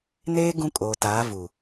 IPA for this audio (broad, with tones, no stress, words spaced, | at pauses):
neː˦ ɡũ˦kʼoː˨taː˨˦ vu˨